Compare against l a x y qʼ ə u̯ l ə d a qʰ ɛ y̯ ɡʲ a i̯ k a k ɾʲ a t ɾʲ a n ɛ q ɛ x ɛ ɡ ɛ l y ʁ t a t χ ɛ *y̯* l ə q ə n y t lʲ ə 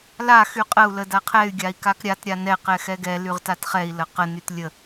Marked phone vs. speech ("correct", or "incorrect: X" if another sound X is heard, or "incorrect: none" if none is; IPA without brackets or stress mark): incorrect: i̯